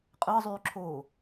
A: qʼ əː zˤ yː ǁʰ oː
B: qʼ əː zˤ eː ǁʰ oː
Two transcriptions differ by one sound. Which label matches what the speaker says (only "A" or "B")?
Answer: A